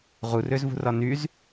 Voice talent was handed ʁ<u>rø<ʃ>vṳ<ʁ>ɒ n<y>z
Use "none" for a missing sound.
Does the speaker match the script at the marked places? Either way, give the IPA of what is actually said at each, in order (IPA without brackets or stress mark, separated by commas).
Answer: u, z, r, y